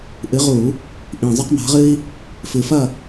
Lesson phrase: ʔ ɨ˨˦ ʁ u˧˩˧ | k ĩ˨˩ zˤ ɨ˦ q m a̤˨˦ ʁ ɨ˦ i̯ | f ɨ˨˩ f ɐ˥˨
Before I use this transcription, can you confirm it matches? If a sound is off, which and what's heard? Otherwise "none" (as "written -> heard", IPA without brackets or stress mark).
k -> ʔ